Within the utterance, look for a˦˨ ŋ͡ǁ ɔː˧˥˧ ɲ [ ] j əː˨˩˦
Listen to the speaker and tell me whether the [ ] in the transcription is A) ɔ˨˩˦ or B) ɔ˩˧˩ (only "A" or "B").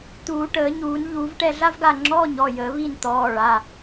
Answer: B